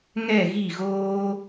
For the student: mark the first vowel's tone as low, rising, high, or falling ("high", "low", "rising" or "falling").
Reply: falling